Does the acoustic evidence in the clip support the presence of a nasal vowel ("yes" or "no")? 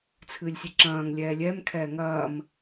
yes